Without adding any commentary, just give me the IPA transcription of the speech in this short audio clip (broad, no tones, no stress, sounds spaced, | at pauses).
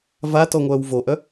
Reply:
v a t ɔ ŋʷ œː w v o ʔ œ